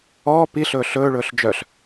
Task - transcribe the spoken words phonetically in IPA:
ɔː p i ɬ ɵː ɬ ɵː ɭ ɵː ɬ d͡ʒ œ ɬ

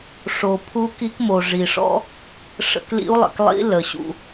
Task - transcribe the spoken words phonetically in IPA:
ʂ o˩ pʰ u˧˥ k i˧˥ k m o˩ ʐ i˩ ʂ ɔ̰˧˥ | ʂ ə̰˧ k l ḭ˧˥ u̯ lˠ ə̰˩ k lˠ ḭ˧˥ l ə˩ ɕ ṵ˩

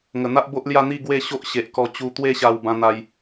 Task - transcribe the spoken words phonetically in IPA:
ŋ ə˨˩ n̪ a˦ ʔ b o˦ ʔ l j a˥˧ n̪ i˥˧ ɡ w e˥˧ ɕ o˦ ʔ ɕ e˨ ʔ k ɔ˧ t͡ɕ u˧ t̪ w e˥˧ ɕ a˧ w b ã˦ n̪ a˦ j

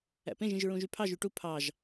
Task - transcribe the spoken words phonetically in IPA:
æ̰ p ẽ ʒ ĩ ʒ ɹ ũ ʒ y pʰ ɑ ʒ y ʈ u pʰ ɑ ʒ

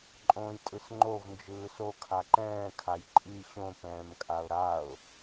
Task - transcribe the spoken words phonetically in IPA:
ǃʼ õː j tʼ ɯ s ŋ͡ǃ o v n d͡ʒ ɯː s o kʰ a ǃ ɛ̃ː kʰ a j ǃʼ i ɕ õ p ɛ̃ː m kʼ a ʊ̯ ɾ a ʊ̯

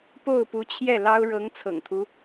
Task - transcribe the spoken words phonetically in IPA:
p o˥˩ ʊ̯ p u˧˥ t͡ɕʰ j ɛ˥˩ l ɑ˥ ʊ̯ ɻ ɤ˧˥ ŋ t͡sʰ ɤ̰˨˩ ŋ t̪ʰ u˦

